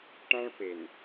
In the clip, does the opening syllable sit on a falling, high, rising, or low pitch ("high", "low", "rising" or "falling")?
high